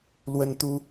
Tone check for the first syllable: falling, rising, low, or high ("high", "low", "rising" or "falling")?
high